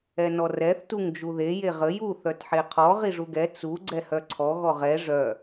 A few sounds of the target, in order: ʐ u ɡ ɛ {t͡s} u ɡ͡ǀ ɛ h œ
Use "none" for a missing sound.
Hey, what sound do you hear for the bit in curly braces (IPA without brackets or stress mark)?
t͡s